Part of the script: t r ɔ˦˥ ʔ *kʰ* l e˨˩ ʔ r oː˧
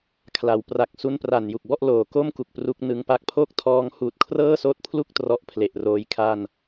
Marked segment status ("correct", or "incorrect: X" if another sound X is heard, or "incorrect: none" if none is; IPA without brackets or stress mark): incorrect: pʰ